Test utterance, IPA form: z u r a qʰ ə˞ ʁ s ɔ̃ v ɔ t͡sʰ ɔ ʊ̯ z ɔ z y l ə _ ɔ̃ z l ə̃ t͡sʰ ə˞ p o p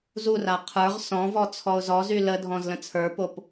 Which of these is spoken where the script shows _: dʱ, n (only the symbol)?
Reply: dʱ